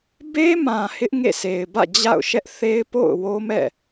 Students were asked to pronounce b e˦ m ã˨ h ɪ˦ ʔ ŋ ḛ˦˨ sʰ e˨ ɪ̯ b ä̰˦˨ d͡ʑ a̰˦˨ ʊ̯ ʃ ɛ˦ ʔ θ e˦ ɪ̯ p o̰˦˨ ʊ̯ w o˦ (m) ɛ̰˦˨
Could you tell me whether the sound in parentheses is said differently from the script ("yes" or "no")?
no